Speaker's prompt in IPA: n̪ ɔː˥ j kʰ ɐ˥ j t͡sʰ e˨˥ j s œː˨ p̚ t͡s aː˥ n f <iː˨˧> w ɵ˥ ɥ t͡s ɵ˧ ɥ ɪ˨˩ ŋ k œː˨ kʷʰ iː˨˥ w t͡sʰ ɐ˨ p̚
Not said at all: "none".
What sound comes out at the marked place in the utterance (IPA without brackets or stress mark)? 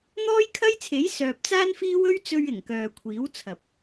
iː˥